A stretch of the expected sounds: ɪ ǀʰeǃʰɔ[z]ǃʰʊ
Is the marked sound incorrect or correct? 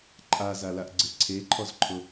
correct